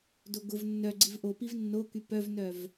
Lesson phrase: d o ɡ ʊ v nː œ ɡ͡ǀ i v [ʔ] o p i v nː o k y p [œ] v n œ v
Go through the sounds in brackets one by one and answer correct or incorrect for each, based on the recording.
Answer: correct, correct

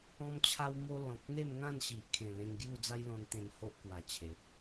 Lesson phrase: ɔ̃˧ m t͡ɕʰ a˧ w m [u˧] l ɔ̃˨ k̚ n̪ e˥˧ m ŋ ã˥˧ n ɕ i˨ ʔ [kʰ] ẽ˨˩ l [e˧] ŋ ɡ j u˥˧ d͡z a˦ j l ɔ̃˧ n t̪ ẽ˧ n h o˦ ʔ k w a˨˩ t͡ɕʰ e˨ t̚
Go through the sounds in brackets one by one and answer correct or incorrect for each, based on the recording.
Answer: incorrect: o˧, correct, incorrect: ẽ˧

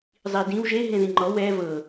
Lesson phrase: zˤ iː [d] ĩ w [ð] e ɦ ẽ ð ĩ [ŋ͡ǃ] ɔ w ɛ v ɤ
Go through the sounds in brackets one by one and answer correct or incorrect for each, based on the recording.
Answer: correct, incorrect: ʒ, correct

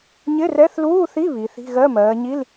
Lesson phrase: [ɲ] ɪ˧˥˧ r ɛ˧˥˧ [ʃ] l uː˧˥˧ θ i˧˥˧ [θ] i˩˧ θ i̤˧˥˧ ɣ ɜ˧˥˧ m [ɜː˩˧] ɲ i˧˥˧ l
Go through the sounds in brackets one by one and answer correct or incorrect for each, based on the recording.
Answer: correct, incorrect: θ, incorrect: β, correct

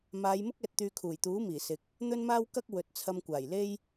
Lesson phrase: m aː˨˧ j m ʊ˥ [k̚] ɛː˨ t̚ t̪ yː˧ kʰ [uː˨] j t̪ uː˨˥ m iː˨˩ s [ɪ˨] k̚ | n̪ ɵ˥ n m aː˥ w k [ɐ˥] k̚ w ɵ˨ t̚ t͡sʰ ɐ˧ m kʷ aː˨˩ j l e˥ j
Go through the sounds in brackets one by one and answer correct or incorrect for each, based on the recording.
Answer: correct, incorrect: uː˨˩, correct, correct

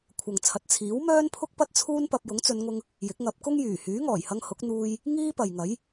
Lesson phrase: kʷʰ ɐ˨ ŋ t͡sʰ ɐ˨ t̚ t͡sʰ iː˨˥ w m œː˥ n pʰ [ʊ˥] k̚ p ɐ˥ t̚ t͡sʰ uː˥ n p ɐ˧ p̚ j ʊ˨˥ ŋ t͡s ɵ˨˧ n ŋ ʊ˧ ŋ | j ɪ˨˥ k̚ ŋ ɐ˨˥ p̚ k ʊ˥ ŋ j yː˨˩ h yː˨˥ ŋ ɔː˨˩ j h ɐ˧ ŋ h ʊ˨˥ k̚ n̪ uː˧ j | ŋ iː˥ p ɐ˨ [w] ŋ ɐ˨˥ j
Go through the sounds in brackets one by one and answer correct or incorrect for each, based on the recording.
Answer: correct, incorrect: j

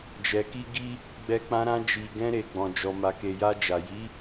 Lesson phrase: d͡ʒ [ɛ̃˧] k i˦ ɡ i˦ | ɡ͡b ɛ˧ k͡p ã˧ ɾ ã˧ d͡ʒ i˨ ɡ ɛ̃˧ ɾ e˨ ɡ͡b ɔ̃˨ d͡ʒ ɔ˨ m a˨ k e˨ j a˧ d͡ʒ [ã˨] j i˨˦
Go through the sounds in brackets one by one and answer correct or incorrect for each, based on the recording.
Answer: incorrect: ɛ˧, incorrect: a˨

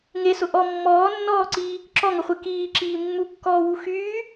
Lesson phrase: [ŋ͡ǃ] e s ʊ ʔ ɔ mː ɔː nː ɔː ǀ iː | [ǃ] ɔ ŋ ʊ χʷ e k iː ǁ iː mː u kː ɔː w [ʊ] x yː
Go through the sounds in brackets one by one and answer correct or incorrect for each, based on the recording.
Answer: incorrect: ŋ, incorrect: ǁ, incorrect: u

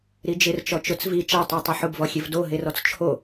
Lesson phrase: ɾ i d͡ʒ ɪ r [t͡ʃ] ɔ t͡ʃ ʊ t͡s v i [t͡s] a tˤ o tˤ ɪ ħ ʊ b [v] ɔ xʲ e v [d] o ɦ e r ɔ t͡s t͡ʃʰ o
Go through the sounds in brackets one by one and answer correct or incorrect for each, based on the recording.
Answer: correct, incorrect: t͡ʃ, correct, correct

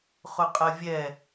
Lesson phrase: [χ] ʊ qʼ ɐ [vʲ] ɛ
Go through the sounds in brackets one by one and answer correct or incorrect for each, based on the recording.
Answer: correct, correct

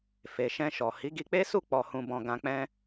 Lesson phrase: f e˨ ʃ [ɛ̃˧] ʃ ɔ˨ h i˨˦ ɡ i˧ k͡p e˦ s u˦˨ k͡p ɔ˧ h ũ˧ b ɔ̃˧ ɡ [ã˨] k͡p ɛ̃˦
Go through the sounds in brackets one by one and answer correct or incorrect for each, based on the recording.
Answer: correct, incorrect: ã˧

